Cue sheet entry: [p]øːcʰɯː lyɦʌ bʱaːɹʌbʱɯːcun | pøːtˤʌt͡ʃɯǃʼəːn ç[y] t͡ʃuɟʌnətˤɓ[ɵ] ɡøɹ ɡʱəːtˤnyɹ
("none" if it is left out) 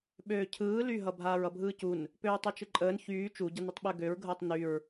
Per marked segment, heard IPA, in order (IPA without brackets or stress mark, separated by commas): ɓ, yː, ø